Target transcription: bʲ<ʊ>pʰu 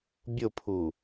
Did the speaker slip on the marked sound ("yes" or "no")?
no